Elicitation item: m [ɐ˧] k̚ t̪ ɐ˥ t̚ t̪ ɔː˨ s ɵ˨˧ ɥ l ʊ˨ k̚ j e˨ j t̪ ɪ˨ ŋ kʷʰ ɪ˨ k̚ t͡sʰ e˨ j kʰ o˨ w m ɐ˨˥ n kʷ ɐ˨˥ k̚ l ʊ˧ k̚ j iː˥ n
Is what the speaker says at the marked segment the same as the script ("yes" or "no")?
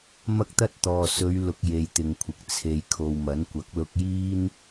no